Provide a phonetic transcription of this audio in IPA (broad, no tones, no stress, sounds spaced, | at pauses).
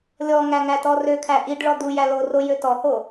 lʲ ɔ ŋ æ ŋ æ t ɔ r ø kʰ æ ʔ i ɖ ɭ ɔ d̪ u j æ l o r o j ø t ɔ h o